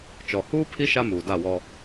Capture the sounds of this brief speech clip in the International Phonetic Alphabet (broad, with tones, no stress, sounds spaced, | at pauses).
t͡ʃ ɔ˨ h uː˦ pʰ i˦ ʃ a˦ m uː˨ d a˦˨ w ɔ˦